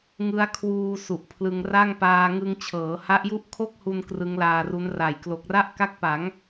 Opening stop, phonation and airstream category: aspirated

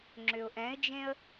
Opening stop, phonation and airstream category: click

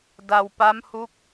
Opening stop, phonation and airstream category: plain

